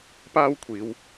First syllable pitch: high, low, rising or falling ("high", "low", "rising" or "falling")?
high